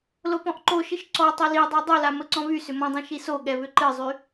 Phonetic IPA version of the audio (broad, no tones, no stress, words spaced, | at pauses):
lopɔ̃ʔǃoʃɨʃ ǀɔ tˤolidˤa dˤola məǀɔ̃ βy sʏmɔ̃dˤĩ ʃisoɠɛ βʏǃɨzˤy